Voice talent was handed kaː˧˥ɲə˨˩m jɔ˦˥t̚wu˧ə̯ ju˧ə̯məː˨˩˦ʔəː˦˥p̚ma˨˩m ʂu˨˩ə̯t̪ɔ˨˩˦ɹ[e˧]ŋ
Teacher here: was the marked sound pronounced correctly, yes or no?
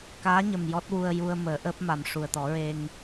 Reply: yes